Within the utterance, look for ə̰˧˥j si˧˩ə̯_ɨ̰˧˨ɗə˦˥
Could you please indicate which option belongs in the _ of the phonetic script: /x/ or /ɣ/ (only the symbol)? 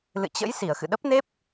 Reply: x